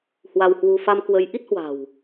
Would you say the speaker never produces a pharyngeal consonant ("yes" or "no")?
yes